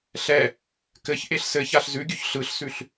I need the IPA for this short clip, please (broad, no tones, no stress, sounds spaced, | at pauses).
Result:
ɬ ɛ | k ɘ ç ʔ e ɬ s ɘ ç a ɬ z ʉ ɡʲ ʉ ç ɬ ɯ ɬ s ʉ ɬ